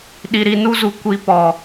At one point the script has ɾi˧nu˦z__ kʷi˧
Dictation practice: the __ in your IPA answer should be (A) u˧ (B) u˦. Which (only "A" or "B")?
A